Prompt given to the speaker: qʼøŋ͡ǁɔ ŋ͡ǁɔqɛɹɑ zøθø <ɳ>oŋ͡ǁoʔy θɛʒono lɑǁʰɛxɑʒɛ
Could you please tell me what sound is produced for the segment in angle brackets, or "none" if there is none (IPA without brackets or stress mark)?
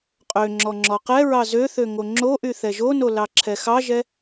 ŋ